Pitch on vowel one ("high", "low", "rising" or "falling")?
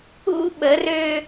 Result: high